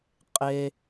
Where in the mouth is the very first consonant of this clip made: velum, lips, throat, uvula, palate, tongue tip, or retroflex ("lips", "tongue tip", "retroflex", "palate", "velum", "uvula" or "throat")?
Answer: uvula